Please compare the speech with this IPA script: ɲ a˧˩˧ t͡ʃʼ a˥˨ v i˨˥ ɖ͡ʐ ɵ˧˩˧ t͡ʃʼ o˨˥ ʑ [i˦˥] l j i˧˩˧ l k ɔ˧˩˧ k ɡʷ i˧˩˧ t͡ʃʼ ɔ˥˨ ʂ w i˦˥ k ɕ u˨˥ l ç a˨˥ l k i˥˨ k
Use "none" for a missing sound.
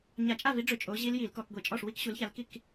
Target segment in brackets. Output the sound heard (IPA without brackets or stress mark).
i˦˥